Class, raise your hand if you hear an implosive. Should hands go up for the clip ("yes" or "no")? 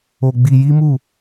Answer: no